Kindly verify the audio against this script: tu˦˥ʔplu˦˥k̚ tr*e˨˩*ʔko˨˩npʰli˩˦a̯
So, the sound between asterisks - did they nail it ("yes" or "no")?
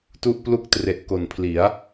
yes